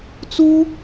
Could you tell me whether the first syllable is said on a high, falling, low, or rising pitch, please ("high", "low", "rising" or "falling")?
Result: high